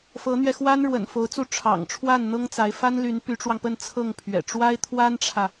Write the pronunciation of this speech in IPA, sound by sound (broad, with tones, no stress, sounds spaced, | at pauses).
f ɤ˧˥ n̪ ɥ ɛ˧ x w a˥ n ɻ w ə̰˨˩ n f o˧˥ ʊ̯ t͡s u˥˩ ʈ͡ʂʰ ɑ̰˨˩ ŋ ʈ͡ʂʰ w a˥˩ n n̪ ɤ˥ ŋ t͡s a˧˥ ɪ̯ f a˥ n l y˧˥ n p y˧˥ ʈ͡ʂ w ɑ˧ ŋ p ə˥˧ n t͡sʰ ɤ˥˩ ŋ pʰ ɥ ɛ̰˨˩ ʈ͡ʂ w a˥ ɪ̯ t̪ʰ w a˥ n ʈ͡ʂʰ ä˨